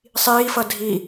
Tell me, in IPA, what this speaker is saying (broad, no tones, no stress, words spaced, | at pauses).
sˤiːfʌ dʱi